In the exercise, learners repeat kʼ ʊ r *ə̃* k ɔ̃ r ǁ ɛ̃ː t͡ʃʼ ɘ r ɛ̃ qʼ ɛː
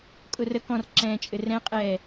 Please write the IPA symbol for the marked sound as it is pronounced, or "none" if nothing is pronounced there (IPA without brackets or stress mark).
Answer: ə